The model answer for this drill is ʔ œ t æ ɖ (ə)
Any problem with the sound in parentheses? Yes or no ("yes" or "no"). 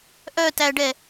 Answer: yes